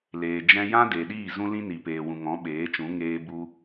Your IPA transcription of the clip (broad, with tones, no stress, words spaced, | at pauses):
leː˨d͡ʒɛ̃˧jã˦ de˨ɗiː˦˨ zũ˧lĩ˧ ni˨peː˨wũ˨ ŋɔ̃˨˦ɓeː˨˦t͡ʃũ˨˦ ŋeː˧bu˧